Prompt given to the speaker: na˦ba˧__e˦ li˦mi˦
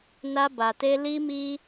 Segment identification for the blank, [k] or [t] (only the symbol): t